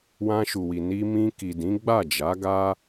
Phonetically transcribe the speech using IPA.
w ã˧ ʃ u˨ w i˨ n i˧ m ĩ˧ k i˨ d ĩ˨˦ ɡ͡b a˦˨ d͡ʒ a˨˦ ɡ a˦

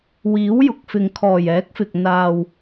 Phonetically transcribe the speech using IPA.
w iː˨˥ w j ʊ˨ k̚ f ɪ˨ ŋ kʰ ɔː˨˩ j ɛː˨˥ k̚ f ɪ˨ k̚ n̪ aː˨ w

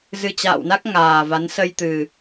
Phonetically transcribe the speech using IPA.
z ɨ˧ t͡ɕ a̰ː˧˨ w n a˦˥ k̚ ŋ aː˨˩ v a˨˦ n s ə˧ j t̪ ɨ˨˩

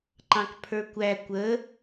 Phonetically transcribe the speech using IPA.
ǃ ɑ̃ k pʰ ə˞ kʷ æ kʷ ə

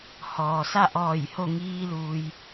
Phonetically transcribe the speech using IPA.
h ɔː˩ s a˥˨ ʔ ɔː˧˩ j h o˥˨ ŋ iː˧ l uː˩ j

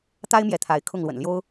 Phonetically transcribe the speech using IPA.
t̪ a˦ ɪ̯ m j ɛ˨˦ t̪ʰ a˨˦ ɪ̯ kʰ ʊ˥˨ ŋ l w ə̰˨˩ n l j o˦ ʊ̯

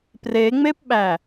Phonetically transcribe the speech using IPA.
p r e ŋ͡m e p ɓ æ

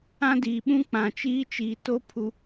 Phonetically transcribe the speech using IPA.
ã˦ d iː˨ ɓ ũ˦ k͡p ã˨ t͡ʃ iː˦ t͡ʃ iː˨ t o˦ pʰ u˨

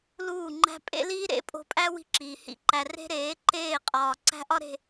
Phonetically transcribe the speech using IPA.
l uː˦˨ ŋ͡ǃ æ̤˦ pʼ ḛ˦ l iː˦ ɾ ḛ˨˦ pʼ o̤˧ pʼ æ˦ w i̤˦ ǁ iː˨ h ḭ˦˨ ǃ æ˧ r e̤˦ ɾ eː˨˦ ǃ eː˦˨ qʼ ɒː˨ ǀ æ̤˦ ʔ ɒ˦ ɾ e̤˦˨

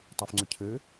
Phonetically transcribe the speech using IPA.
tˤ u f ŋ͡ǀ ʏ cʰ ɘ

